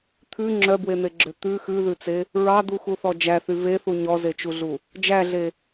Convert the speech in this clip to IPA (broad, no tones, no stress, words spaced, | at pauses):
t̪ʰʉ ŋ͡ǁœbwen̪eɡ͡ǁø t̪ʉ xʉðʉt͡se | ɹɑd̪uxuθɔ d͡ʒæθy veθu ɲɔzet͡ʃuɮu | d͡ʒæɮe